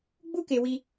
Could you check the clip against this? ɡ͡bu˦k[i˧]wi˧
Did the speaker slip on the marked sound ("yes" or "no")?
yes